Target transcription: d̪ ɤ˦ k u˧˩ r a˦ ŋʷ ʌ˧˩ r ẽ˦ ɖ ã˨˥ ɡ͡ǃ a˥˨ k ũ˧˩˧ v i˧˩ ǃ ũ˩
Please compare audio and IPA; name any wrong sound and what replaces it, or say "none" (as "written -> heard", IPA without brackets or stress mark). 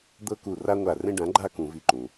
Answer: ʌ˧˩ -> a˧˩